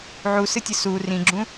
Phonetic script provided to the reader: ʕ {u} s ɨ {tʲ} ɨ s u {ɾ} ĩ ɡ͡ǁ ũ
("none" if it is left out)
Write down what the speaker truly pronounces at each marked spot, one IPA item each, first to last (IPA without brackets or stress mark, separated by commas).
u, tʲ, r